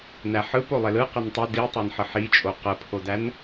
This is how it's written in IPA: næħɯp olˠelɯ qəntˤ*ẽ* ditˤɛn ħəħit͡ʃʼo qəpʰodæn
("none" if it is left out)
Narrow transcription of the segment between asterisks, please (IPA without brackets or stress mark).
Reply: e